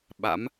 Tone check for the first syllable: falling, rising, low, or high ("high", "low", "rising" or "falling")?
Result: rising